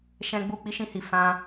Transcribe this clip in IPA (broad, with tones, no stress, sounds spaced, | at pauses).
ʃ ɛ̃˧ ɡ͡b u˦˨ k͡p i˦ ʃ ĩ˧ h i˨ f ã˧